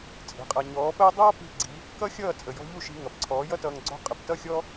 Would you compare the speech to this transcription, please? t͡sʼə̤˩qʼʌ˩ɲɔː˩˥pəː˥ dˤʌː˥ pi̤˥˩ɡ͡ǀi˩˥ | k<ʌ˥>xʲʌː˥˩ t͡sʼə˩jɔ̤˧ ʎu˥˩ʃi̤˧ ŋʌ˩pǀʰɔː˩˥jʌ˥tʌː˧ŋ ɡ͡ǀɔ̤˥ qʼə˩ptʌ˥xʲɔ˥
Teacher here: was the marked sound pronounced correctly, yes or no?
yes